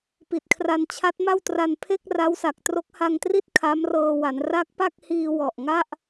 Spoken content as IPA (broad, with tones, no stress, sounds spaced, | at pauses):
p i˨˩ t̚ kʰ r a˧ n t͡ɕʰ a˦˥ t̚ m a˥˩ w t r a˧ n pʰ e˥˩ k̚ r a˦˥ w s a˨˩ k̚ t r o˦˥ k̚ h a˧ ŋ t r i˥˩ t̚ kʰ a˦˥ m r ɤː˧ w a˩˦ n r a˦˥ k̚ p a˥˩ k̚ h iː˧ w ɔ˨˩ ʔ ŋ a˥˩ ʔ